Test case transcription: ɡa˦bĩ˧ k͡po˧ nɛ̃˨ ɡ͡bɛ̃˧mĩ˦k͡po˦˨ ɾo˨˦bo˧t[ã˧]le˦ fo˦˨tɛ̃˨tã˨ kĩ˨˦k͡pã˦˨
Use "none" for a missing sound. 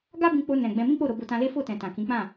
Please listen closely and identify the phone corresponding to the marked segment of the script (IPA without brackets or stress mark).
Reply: ã˧